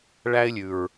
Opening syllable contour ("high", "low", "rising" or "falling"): high